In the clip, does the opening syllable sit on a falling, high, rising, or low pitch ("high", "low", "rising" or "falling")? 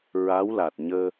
rising